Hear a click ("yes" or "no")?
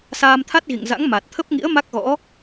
no